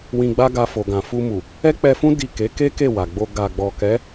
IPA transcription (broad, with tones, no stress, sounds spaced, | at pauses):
w ĩ˧ ɡ͡b a˦ ɡ a˧ f o˨ ɡ ã˨ f u˧ m u˨ | ɛ˦ k͡p ɛ˧ f ũ˦ d i˦˨ k e˨˦ k e˦ k e˦˨ w a˨ ɡ͡b o˧ ɡ a˨ ɡ͡b ɔ˨ k ɛ˨˦